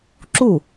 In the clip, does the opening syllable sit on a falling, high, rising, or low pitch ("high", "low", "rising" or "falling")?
falling